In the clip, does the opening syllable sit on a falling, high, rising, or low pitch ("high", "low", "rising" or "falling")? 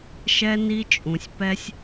high